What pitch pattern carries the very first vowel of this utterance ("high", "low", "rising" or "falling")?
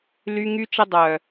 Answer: high